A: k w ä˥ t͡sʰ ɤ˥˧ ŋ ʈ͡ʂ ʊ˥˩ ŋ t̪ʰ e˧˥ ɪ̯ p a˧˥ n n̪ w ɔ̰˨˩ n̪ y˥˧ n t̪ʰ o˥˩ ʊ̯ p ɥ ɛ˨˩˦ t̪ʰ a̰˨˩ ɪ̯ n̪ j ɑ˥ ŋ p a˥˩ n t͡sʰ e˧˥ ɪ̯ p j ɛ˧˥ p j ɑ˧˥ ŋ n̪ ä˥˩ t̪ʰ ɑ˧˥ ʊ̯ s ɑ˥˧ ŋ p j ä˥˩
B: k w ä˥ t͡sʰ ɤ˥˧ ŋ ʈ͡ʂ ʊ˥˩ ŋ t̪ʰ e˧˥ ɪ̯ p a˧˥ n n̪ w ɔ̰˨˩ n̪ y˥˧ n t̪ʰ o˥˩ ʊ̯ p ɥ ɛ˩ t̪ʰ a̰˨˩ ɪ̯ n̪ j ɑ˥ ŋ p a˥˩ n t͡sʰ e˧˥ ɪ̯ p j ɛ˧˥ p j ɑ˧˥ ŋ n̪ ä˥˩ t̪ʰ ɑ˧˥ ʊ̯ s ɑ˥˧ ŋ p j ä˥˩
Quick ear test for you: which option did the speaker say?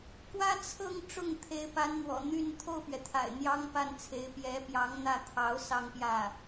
B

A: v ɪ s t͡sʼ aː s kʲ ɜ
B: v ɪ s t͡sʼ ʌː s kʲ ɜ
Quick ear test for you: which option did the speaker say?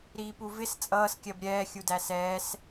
B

